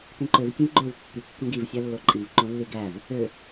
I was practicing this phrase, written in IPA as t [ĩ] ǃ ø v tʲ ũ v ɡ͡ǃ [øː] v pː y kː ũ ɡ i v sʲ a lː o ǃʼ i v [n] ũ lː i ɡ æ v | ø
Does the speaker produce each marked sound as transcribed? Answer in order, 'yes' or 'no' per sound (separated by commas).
yes, yes, no